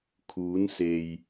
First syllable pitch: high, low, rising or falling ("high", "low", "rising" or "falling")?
rising